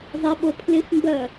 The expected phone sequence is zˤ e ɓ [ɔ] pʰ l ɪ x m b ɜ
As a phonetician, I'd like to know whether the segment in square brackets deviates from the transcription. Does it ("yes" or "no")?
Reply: yes